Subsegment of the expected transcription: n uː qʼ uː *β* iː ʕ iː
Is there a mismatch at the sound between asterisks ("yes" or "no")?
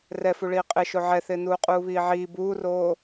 no